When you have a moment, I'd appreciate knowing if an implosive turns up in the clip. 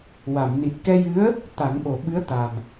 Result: yes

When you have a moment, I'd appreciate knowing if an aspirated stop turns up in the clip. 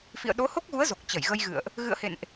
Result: no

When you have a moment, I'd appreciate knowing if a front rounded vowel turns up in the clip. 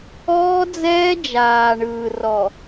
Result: no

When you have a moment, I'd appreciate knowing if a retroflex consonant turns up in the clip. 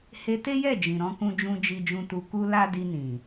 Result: no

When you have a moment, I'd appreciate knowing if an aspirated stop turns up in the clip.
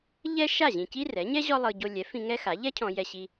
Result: yes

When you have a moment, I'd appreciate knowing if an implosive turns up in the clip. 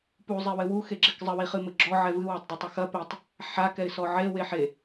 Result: no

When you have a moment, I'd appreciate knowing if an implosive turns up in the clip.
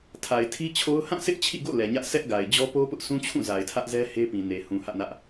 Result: no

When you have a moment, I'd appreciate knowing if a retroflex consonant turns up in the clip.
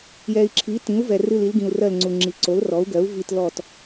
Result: no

